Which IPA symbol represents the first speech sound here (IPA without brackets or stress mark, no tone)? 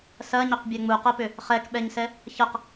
s